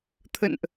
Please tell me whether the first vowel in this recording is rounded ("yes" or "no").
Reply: no